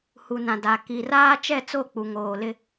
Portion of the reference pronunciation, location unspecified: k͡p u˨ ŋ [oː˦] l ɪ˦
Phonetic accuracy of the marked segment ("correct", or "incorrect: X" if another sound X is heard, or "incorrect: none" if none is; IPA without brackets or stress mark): incorrect: oː˨